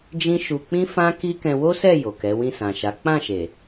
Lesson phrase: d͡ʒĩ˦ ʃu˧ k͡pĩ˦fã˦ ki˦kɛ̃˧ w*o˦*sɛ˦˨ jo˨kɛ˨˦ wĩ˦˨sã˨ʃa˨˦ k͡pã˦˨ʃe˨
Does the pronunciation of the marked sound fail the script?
no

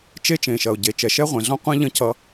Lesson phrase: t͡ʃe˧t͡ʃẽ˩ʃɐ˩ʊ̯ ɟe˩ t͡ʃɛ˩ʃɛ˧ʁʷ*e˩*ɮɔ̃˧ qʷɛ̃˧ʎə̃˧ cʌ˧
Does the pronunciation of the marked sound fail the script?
yes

